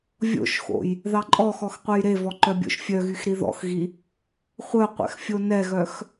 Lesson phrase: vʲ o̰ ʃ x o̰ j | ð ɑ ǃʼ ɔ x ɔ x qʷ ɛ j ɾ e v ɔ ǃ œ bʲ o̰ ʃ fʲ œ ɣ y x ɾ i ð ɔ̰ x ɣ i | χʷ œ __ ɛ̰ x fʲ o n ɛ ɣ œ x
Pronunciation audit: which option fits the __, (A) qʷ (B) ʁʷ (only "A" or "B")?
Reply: A